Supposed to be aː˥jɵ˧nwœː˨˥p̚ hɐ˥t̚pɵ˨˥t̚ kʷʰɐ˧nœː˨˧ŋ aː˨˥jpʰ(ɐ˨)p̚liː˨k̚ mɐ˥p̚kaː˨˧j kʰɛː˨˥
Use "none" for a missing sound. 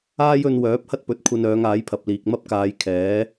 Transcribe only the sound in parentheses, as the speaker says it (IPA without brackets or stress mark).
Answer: ɐ˨